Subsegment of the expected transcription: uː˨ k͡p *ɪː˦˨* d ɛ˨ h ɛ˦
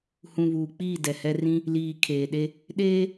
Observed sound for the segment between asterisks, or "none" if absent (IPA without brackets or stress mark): iː˦˨